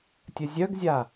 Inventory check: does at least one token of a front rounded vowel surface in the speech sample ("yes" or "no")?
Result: yes